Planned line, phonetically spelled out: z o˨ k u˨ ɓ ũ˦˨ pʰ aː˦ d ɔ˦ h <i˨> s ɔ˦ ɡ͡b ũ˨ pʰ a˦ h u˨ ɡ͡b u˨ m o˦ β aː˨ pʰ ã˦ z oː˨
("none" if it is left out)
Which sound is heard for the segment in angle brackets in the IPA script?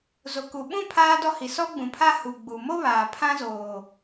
i˨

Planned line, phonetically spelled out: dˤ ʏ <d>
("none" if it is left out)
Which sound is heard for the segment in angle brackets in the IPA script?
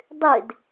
d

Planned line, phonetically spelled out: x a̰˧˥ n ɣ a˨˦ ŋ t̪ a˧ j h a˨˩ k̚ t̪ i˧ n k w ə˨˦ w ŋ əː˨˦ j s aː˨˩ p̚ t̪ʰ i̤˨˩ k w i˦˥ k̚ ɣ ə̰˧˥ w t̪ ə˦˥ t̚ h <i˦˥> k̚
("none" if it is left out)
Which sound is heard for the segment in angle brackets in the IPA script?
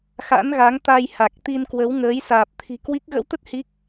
i˦˥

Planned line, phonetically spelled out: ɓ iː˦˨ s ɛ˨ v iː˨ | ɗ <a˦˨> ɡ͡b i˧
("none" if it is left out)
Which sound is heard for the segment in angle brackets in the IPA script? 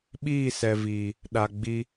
a˨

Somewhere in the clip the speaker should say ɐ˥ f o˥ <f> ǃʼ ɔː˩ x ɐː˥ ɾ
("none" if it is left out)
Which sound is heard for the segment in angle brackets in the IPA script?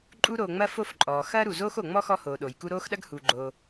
f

